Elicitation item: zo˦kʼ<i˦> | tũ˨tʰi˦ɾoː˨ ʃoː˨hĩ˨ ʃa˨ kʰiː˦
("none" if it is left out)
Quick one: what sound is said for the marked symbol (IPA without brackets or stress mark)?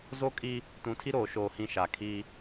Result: i˦